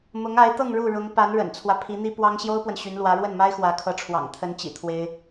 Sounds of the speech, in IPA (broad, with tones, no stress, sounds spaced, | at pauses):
m ʊ˧˥ ŋ a˧˥ ɪ̯ t̪ ɤ˥˧ ŋ ɻ u˥˩ ɻ ʊ˧˥ ŋ p a˧˥ n ɻ ə̰˨˩ n t͡sʰ w ä˦ pʰ i˧˥ n̪ i˥ p w ɑ˥ ŋ ɕ j o˥ ʊ̯ p w ə˨ n ɕ y˧˥ n l w ä˧˥ ɻ w ə˥˩ n m a˥ ɪ̯ x w ä˧˥ kʰ ɤ˧˥ ʈ͡ʂʰ w ɑ̰˨˩ ŋ t̪ʰ ə˧˥ n t͡ɕ ḭ˨˩ t̪ʰ w e˥ ɪ̯